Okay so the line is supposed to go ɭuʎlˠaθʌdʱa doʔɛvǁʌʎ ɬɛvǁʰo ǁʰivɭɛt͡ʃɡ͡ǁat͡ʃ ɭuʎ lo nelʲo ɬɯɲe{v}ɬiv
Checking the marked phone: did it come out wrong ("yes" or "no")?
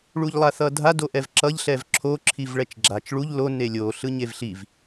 no